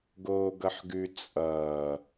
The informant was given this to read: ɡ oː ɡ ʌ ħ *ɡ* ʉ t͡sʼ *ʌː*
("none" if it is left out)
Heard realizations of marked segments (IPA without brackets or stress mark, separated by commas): ɡ, ʌː